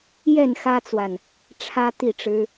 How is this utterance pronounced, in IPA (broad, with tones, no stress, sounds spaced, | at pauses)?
j ɛ˥˨ n x ä˦ t͡s w a˨ n | ʈ͡ʂʰ ä˦ t̪ i˥˨ ʈ͡ʂ ɻ̩˦